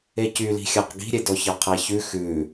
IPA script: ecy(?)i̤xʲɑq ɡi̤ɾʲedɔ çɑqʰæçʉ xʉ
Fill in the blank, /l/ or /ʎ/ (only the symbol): l